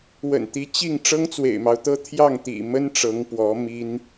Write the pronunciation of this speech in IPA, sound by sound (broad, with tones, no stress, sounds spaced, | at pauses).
w ə̰˨˩ n t̪ i˧˥ t͡ɕ i˥˩ ŋ ʈ͡ʂ ɤ˥ ŋ t͡s w ḛ˨˩ ɪ̯ m ɑ˦ ʊ̯ t̪ ɤ˥ t̪ʰ j ɑ˥˩ ŋ t̪ ḭ˨˩ m ə˥ n ʈ͡ʂ ɤ˧˥ ŋ p w ɔ˧˥ m i˥ n